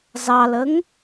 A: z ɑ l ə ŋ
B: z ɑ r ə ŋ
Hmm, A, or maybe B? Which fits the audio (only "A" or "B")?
A